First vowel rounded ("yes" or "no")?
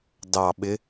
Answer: no